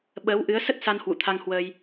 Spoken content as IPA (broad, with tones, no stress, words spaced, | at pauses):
ɓəː˨˦wʔɨ˨˦ə̯sə˦˥t̚sa˧n hwṵ˧˨t̪ʰa˧ŋhwəː˧j